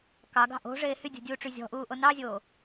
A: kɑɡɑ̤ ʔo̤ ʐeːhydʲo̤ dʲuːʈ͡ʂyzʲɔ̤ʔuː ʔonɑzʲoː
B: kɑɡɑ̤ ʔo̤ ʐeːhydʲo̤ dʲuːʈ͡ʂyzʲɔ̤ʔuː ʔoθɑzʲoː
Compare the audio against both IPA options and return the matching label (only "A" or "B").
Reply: A